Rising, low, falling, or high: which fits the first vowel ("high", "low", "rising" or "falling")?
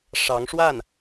rising